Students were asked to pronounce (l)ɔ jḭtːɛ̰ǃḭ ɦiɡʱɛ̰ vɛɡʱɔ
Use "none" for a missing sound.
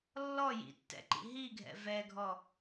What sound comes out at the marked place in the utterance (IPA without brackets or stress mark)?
lː